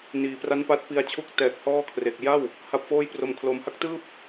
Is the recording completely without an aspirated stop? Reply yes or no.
no